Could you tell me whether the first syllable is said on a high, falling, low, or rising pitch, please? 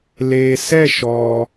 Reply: low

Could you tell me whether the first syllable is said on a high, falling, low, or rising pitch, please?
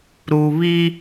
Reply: low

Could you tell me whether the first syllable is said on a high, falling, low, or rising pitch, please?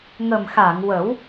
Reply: low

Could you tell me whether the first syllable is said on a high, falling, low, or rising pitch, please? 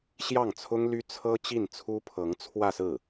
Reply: falling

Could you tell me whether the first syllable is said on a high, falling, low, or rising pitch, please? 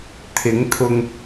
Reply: rising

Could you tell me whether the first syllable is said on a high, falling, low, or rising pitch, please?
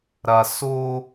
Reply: low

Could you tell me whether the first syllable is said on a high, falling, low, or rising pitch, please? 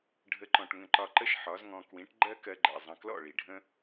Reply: rising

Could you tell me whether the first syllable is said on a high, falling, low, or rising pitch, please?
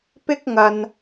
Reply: high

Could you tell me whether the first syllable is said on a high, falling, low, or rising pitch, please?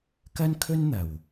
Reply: high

